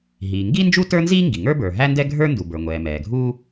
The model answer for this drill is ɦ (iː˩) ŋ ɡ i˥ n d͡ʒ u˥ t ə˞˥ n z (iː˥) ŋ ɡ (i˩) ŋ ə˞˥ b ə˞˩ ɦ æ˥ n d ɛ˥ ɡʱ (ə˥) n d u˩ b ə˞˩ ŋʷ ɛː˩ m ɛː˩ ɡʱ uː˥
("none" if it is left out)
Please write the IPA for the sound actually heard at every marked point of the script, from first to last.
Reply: iː˩, iː˥, i˩, ə˞˥

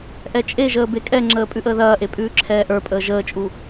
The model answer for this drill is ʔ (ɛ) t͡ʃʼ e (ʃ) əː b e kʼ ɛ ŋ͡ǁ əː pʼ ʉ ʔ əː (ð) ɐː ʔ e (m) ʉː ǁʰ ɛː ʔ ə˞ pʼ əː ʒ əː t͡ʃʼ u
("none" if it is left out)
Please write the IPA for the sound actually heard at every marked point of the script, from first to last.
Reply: ɛ, ʒ, ð, pʼ

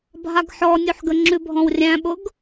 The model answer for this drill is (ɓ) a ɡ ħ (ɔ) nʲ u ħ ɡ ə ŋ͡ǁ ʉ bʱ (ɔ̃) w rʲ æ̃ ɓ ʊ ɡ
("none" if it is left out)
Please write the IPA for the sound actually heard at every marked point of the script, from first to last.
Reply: bʱ, ɔ, ɔ̃

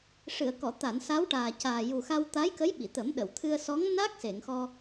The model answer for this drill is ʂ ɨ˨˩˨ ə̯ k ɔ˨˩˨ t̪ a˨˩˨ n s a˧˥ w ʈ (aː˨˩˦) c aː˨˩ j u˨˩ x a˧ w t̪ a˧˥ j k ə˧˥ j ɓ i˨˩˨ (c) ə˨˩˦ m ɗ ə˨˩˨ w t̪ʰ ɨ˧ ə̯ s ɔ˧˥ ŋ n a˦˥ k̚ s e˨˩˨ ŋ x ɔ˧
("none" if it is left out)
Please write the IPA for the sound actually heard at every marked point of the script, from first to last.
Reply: aː˨˩, t̪

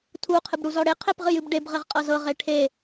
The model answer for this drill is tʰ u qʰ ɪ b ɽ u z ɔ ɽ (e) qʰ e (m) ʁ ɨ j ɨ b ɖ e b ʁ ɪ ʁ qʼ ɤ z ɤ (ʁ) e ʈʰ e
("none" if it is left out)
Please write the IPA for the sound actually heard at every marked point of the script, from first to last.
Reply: e, p, ʁ

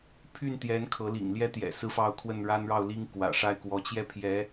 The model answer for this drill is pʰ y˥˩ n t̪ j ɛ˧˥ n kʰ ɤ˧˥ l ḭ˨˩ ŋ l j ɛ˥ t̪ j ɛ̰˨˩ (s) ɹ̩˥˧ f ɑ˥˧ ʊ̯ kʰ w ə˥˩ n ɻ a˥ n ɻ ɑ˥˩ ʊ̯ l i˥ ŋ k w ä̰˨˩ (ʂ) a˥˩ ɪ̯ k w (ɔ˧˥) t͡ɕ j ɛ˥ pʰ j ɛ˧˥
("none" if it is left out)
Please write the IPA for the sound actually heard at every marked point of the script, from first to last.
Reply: s, ʂ, ɔ˧˥

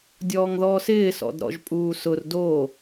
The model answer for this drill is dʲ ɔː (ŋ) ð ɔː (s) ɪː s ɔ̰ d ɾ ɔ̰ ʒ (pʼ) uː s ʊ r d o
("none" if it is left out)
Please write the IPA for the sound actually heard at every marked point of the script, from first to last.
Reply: ŋ, s, pʼ

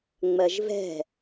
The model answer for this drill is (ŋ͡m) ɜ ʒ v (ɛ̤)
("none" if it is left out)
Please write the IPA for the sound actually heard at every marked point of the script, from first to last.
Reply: ŋ͡m, ɛ̤

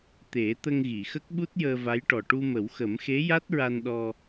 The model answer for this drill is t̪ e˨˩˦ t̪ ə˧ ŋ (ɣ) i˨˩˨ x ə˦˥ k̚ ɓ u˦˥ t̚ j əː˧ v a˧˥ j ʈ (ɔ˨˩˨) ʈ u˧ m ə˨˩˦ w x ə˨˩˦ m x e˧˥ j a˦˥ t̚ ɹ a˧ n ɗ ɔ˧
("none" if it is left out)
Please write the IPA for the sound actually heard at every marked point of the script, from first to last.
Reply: ɣ, ɔ˨˩

